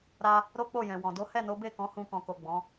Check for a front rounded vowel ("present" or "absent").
absent